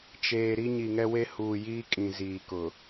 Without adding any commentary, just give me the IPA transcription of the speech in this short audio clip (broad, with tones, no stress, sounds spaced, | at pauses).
t͡ʃ eː˨ ɾ i˦ ɲ i˨ ŋ ɛ˦ w e˦ h uː˨ j iː˦ kʼ ĩ˨ z iː˨ k ʊ˨